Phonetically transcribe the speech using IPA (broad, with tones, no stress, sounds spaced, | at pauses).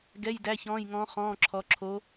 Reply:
ɡ ɛ˧˥˧ j d æ˧˥˧ ç ɔ̃ː˧˥˧ j ŋ ɔ̃ː˧˥ χ ɔ̃ː˧˥˧ ǁʰ ɔ˧˥ ǁʰ o˧˥